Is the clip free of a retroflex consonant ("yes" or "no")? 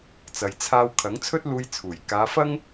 yes